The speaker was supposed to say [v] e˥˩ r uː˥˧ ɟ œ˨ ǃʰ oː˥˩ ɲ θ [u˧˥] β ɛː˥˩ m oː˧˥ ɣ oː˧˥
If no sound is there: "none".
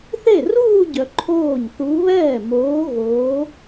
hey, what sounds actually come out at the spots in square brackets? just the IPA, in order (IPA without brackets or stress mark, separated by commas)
θ, u˧˥